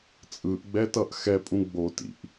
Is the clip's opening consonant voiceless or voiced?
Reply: voiceless